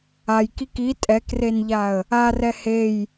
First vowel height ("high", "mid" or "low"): low